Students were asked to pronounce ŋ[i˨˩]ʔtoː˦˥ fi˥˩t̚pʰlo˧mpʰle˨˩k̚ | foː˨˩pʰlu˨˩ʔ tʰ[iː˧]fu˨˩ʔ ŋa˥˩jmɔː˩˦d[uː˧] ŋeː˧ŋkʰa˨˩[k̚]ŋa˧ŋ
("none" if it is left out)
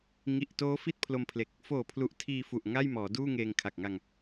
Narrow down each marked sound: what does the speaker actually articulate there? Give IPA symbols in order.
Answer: i˨˩, iː˧, uː˥˩, k̚

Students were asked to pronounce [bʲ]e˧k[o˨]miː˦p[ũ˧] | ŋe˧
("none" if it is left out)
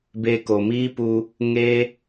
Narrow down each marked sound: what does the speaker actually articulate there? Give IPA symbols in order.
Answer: b, o˨, u˧

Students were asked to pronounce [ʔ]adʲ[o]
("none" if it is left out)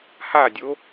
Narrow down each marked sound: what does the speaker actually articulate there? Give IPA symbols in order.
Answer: h, o

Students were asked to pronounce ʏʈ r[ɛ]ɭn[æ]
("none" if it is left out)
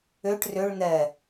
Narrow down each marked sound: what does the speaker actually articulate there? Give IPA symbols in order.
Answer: ʏ, ɛ

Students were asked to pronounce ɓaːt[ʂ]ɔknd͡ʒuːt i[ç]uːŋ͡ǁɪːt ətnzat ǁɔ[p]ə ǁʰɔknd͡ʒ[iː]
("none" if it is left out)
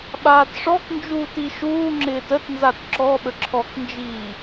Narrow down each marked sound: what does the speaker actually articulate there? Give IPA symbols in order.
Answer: ʂ, ʃ, ɓ, iː

